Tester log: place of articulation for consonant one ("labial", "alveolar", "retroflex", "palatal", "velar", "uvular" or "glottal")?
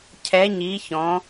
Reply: palatal